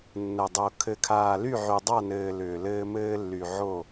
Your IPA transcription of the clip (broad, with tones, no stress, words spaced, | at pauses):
nːə˨dˤo˨ kʰɘ˨kʰaː˨ly˦˨ ʕy˨dˤa˦˨nɘː˨ lʏː˨lɘː˦mɘː˦ lːy˨ʕo˦˨